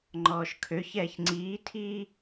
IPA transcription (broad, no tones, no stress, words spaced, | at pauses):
ŋ͡ǃɔːʃkʰøçɛːç ŋ͡ǀiːtʰiː